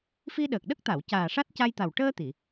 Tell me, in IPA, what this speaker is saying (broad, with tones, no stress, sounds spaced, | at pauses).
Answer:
f i˧ ɗ əː˨˩ k̚ ɗ ə˦˥ k̚ t̪ a˨˩˨ w c aː˨˩ ʂ a˦˥ t̚ c a˧ j t̪ a˨˩ w ʈ əː˧ t̪ i˨˩˨